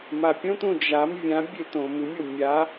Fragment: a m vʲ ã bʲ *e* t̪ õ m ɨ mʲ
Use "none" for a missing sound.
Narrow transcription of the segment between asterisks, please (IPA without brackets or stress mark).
e